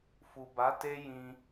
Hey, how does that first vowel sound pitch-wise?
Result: low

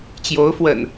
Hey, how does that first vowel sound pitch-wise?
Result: rising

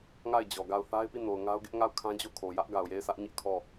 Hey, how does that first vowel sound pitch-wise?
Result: falling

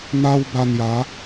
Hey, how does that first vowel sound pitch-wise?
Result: high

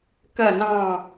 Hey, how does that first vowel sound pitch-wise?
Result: falling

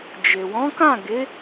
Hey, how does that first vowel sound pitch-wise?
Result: low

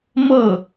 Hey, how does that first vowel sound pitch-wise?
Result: falling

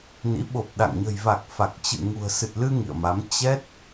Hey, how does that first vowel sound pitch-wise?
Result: rising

